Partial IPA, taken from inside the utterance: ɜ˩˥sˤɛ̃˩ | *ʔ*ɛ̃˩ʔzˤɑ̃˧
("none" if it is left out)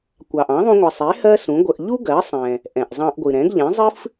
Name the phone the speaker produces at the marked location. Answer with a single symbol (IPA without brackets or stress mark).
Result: ʔ